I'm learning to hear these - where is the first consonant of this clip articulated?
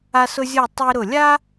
tongue tip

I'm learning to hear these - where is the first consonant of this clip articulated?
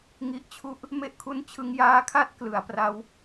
velum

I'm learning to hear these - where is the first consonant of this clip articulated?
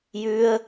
palate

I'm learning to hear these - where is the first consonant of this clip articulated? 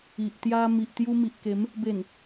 throat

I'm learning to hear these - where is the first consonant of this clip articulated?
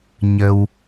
palate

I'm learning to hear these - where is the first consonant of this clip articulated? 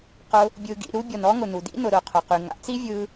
uvula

